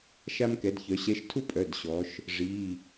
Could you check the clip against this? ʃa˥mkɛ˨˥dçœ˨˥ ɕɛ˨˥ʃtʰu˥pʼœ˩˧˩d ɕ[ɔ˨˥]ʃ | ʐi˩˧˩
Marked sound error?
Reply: no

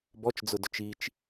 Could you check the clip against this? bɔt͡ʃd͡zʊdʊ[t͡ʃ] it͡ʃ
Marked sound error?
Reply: no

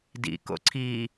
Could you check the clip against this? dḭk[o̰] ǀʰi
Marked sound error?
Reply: no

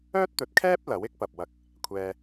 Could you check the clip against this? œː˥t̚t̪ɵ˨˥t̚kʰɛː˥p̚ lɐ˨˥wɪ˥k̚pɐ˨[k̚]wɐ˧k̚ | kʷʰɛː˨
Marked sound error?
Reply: yes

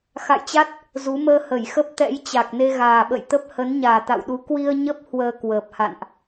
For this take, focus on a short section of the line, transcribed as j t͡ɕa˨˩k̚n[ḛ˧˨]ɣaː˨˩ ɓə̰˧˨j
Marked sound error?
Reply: yes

